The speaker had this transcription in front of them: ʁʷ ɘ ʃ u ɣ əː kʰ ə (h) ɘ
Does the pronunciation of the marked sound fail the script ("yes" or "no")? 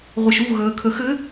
yes